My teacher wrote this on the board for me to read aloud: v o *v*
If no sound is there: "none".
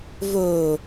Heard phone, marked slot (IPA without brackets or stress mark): none